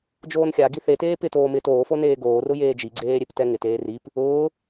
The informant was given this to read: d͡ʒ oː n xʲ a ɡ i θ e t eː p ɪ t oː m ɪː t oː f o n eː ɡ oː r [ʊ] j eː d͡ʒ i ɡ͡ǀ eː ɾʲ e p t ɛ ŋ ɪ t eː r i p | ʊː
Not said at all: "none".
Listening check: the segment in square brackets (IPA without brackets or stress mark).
ʊ